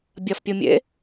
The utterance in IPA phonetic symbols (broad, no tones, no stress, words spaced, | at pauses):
bʲɐfpʲumʲḛ